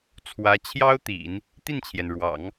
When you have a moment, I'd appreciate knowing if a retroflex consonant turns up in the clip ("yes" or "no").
yes